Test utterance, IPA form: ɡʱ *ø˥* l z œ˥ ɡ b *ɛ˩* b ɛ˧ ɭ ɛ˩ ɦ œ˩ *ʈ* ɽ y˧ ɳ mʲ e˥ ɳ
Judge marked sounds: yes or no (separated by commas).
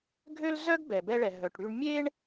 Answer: yes, yes, yes